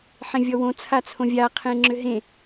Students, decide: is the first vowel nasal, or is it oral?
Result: nasal